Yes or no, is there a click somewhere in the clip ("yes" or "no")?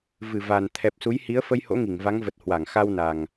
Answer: no